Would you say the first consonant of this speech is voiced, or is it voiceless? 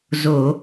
voiced